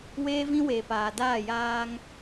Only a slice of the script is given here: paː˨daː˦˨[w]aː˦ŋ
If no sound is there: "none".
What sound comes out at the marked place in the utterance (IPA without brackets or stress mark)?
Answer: j